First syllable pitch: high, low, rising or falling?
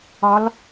rising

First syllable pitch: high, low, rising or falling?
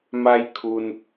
high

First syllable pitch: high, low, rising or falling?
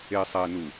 low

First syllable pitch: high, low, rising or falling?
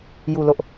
low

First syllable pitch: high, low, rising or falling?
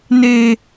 high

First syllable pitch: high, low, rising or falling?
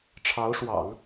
rising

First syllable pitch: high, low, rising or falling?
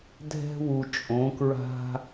high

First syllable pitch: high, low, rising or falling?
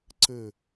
low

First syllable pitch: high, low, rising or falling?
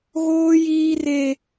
high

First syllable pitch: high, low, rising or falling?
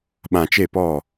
low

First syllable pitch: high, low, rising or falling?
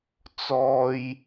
high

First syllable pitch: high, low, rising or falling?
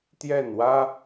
falling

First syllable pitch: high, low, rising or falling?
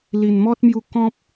low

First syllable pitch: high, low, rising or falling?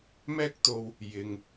high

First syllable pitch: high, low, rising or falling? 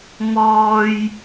high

